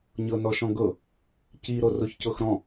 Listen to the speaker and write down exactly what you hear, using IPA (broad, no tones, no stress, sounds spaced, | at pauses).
ɲ ɤ n ɔ ʃ ɔ̃ ɡ ɤ | c i ɾ o r o ç c ɤ x ɾ ɔ̃